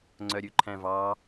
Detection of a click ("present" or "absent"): present